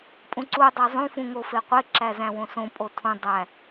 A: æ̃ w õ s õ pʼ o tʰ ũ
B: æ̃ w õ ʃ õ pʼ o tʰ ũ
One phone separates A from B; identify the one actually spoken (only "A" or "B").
A